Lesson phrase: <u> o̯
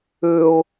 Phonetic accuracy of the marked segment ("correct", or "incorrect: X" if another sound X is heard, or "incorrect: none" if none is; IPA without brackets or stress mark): incorrect: ø